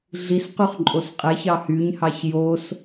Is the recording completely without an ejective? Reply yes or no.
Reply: no